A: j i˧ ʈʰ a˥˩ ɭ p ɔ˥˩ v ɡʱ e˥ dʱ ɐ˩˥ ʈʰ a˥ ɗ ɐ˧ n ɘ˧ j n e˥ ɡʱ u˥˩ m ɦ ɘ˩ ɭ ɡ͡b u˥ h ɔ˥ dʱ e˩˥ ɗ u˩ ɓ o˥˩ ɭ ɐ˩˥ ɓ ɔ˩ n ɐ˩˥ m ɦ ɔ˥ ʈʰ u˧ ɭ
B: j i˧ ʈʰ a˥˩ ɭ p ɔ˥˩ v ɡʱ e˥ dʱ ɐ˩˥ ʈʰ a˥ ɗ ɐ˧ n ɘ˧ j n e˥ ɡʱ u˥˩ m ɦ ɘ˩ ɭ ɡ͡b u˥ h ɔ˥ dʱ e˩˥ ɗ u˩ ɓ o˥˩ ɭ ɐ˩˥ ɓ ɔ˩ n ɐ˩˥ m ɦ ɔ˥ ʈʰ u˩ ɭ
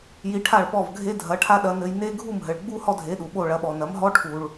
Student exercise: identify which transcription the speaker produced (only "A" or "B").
B